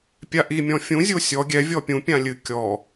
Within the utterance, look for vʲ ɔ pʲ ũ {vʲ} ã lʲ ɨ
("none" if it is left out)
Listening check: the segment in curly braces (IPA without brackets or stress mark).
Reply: pʲ